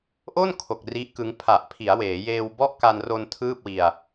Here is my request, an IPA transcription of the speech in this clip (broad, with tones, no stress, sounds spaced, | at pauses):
ʔ o˥˩ n kʰ o˨˩ k̚ r i˦˥ ʔ k ɯ˦˥ ŋ pʰ a˨˩ ʔ pʰ i˩˦ a̯ w eː˩˦ j eː˧ w b ɔ˥˩ ʔ k a˧ n r o˧ n tʰ ɯː˥˩ p̚ w i˧ a̯